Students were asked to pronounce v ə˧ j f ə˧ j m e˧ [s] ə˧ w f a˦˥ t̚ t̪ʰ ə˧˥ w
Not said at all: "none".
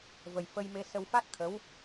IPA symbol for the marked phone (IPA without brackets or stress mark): s